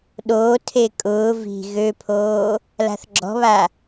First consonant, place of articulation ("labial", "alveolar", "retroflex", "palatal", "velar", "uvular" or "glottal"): alveolar